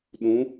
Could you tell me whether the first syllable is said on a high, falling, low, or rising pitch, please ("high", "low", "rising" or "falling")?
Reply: rising